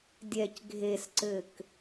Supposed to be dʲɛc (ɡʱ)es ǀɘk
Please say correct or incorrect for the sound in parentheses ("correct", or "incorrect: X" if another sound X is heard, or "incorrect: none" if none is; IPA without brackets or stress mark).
correct